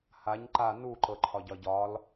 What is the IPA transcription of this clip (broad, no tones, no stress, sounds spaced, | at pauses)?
h a ɲ ǃ a n u ǃ ɤ ǃʰ ɒ ɟ ɒ ɟ ɒ l